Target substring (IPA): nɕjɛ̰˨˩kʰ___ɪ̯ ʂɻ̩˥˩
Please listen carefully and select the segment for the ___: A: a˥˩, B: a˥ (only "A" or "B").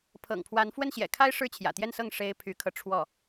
B